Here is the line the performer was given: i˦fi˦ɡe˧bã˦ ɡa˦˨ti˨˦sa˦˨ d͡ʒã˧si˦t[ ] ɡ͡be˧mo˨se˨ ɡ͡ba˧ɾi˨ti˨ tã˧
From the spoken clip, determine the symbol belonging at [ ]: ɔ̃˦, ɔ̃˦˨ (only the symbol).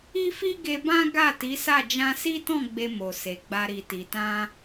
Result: ɔ̃˦˨